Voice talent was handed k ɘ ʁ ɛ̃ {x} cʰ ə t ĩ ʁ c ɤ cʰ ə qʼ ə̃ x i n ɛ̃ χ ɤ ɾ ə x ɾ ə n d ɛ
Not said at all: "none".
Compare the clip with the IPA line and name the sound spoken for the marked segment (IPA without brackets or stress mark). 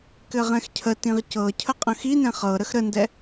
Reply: x